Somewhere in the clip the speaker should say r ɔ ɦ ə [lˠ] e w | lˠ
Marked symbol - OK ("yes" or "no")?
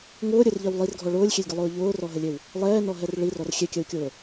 no